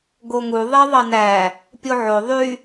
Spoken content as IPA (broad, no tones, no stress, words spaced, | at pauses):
ɡoŋu ðˤeðˤɑnæ | pʲoʕo ðˤy